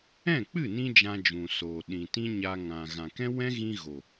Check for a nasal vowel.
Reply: present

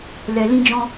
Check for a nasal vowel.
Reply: present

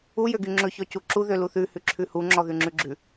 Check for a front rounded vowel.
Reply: present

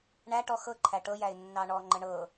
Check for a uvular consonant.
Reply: absent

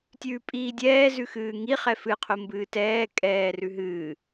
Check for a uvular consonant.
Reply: present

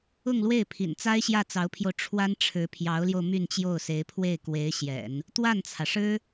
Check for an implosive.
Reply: absent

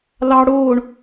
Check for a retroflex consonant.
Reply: present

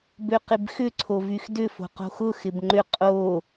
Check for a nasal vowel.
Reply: absent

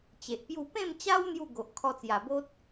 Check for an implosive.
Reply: absent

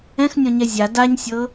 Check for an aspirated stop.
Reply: absent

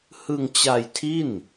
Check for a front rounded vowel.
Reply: absent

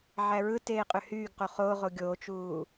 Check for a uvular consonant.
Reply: present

